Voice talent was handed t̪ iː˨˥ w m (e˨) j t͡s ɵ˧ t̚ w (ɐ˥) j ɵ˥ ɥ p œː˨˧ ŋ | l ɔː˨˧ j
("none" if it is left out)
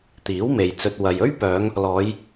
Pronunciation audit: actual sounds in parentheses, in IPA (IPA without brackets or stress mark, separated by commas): e˨, ɐ˨